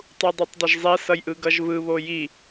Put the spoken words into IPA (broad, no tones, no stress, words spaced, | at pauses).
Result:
tˤudˤutˤdˤʌʒzˤɛ sʌjʔɯɡʌʒvɯ βoji